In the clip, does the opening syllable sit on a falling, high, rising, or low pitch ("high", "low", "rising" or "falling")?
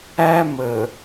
high